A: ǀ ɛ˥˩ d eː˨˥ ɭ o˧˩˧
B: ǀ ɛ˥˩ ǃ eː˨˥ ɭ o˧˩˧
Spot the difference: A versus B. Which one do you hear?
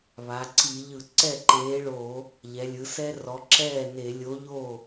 B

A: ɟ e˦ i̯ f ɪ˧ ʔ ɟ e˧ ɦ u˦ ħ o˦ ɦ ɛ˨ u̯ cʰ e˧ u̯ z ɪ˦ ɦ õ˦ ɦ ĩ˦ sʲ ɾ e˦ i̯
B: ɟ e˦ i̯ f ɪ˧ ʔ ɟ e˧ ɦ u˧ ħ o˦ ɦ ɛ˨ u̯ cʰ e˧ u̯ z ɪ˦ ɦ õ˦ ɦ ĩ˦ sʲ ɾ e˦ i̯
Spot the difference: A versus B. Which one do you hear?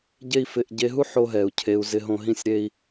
A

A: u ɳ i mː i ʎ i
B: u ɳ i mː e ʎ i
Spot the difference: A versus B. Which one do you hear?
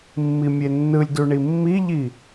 A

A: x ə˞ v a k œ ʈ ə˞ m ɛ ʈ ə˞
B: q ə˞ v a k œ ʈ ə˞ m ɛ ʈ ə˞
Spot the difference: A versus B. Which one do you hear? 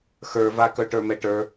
A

